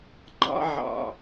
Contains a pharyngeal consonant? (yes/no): yes